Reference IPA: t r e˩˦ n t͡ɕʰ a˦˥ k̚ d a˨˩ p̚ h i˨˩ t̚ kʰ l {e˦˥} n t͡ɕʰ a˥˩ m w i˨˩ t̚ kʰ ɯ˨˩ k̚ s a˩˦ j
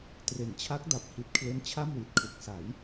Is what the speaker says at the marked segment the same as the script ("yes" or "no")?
yes